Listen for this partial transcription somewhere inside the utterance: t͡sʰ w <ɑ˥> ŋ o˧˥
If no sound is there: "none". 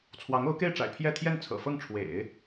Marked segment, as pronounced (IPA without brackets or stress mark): ɑ˧˥